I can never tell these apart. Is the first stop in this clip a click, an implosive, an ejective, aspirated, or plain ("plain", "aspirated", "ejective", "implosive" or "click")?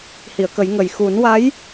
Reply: plain